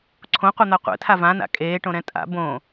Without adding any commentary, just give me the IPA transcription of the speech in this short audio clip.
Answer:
ǀʰõqʷɤn̪a qʷɛ̰tʰa vãna̰ kʼeːʈõɾɛ̃ tʼa̰ bõ

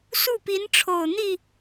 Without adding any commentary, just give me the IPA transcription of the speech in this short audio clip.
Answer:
su˥˩pi˧˥nʈ͡ʂʰo˨˩ʊ̯ n̪i˥˩

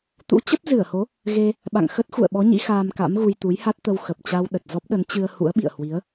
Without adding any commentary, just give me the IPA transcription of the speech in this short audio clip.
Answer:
t̪ṵ˧˥t͡ɕə˦˥p̚ zɨ˧˩ə̯ho˨˦ | ɣe˧ | ɓa̰˧˨ŋxə˦˥t̚xṵ˧˨ə̯ɓɔ˨˦ ɲḭ˧˥xaː˧mka̰˧˥mɣu˧j t̪u˨˦jha˦˥t̚t̪ə˧w xə˨˩p̚t͡ɕa˧w ɗə˨˩t̚ zɔ˦˥p̚ɗə˨˦nt͡ɕɨ˧ə̯ hṵ˧˥ə̯ɓḭ˧˨ə̯hwi˨˦ə̯

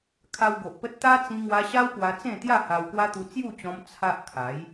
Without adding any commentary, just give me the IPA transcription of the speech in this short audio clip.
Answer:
kʰa˧wɡo˨ʔpə˦t̚ t̪a˦ t͡sĩ˧ŋwa˧ ɕa˦wpwa˧t͡sẽ˥˧t̪ja˥˧ ha˧wkwa˦t̪u˧ t͡sju˥˧t͡ɕɔ̃˧m t͡sʰa˦ʔ kʰa˨˦j

